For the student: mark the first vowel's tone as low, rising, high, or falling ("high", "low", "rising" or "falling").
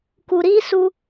low